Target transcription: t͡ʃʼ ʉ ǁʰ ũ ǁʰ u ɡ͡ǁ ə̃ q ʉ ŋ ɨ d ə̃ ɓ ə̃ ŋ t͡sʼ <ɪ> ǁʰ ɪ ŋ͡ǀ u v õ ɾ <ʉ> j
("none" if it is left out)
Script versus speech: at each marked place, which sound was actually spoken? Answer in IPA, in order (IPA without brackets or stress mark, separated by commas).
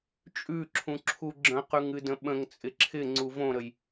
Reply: ɪ, ə